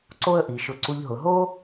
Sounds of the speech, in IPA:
ǀ o˥ ə̯ ʔ i˩˧ ʃ ʊ˧ ǀ u˧ ʎ ɦ ʊ˩˧ ɦ o˥

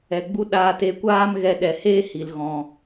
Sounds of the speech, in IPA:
ɛ˨ ɡ͡b u˧ ɗ aː˧ t e˧ kʷ aː˦ m ɣ ɛ˧ ɗ ɛ˨ h eː˦ h i˨ l ɣ ɔ̃˨

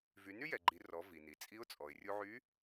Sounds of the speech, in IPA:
v y˩˧ n y˥ j ɛ˩ ɡ͡ǃ i˩˧ r ɔ˩˧ v i˩ n i˩ t͡sʼ i˧˥ ʊ̯ t͡sʼ ɔ˩ ɪ̯ rʲ u˧ ʕ y˧˥

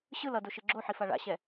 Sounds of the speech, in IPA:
ɕ ɯ l ʌ d o ʃ ɯ ɡ͡ǁ o ħ i f a ɭ a̰ ɕ ɛ

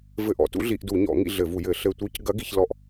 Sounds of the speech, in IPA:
v ɘ˦˨ ʔ ɔ̰˧˩˧ t ṵ˧˥ ɮ i˧˩˧ ʔ d u˧˩˧ ɲ ɔ̰˧˩˧ ŋ ḭ˦˨ ɮ ɘ˧˩˧ v u˧˩˧ j ɘ˧˩˧ ɬ ɘ˦˨ tʷ i˧˥ c ɡ ɐ˧˥ ɡ i˧˩˧ ç l ɔ˦˨ ʔ

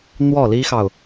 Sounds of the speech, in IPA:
n̪ w ɔ˥˩ l i˥ x ɑ˨ ʊ̯

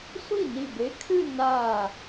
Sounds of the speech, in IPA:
sʷ i˥˩ n i˧˩ b e˨˥ kʰ ɨ˥˧ n a˧˩

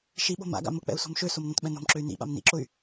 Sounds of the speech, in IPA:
ʃ i ɓ o̤ m a̰ ɡ a̰ m ʊ k͡p ɛ̰ u̯ s o̤ m ʃ ø s o m n õ t ɓ ɛ̃ n o̤ m ǁ ø y̯ n ḭ ɓ a̰ m n ḭ ǁ ʊ y̯

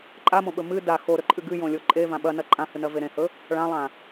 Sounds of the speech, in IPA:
ǃʼ a m õ ɓ ɵ m ɨ d a x o ɾ ɵ ǃʼ ɨ ɡ ɨ j õ lʲ o ǃʼ e v ã ɓ ɐ n ɐ ǃʼ ã h ɨ n ɐ v e ɾ ẽ h ɵ | ɭ ã lˠ ã

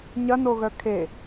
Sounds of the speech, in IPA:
ɲ ɐ n o ɣ œ kʰ e

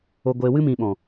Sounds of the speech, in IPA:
o˨ ɡʷ eː˨ w ɨ˧ m ĩ˨ ɓ ɔ̃˨

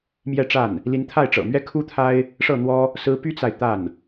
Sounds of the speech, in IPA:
m j ɛ˥˧ ʈ͡ʂ a˥˩ n | l i˧˥ n t̪ʰ a˥˩ ɪ̯ ʈ͡ʂ ɤ̰˨˩ m ɥ ɛ˥ kʰ u˥ t̪ʰ a˥ ɪ̯ | ʂ ɤ˥˩ n̪ w ɔ˥ | s ɹ̩˧˥ p y˥ t͡s a˨ ɪ̯ t̪ a˥˩ n

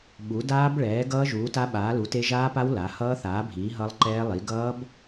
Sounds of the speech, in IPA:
ɓ u˨˥ d aː˦˥ b ɭ ɛː˨˥ ɡ ʌː˦˥ ʒ uː˨˥ t a˦˥ ɓ aː˨˥ l u˨˥ t e˦˥ ʒ aː˦˥ p a˦˥ w l a˨˥ h ʌː˦˥ θ aː˨˥ bʱ iː˨˥ ɦ ʌ˦˥ lˠ ǃ ɛː˦˥ lˠ i˨˥ ɡ ʌː˦˥ b

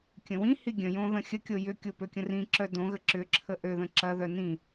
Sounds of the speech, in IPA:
kʲ ə̃ w ĩ h i ɡʲ ə̃ j õ ð ə̃ xʲ ə kʲ o j ʏ kʲ o p ø kʲ ə̃ r ĩ ǁ œ d õ ɣ ə ǁ ʏ ǁʰ ə ʔ ø ð ə̃ ǁ ɐ ð œ n ĩ

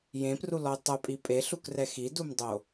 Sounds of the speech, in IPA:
j ẽ p r u l ɔ ʊ̯ tˤ œ pʼ i pʼ e ɬ u k r ɛ x i d u m dˤ o

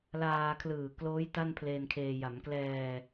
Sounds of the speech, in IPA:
l aː˧ kʰ l ɯː˨˩ k l oː˦˥ j t a˥˩ n pʰ l eː˧ n kʰ eː˧ j a˩˦ m k l ɛː˧

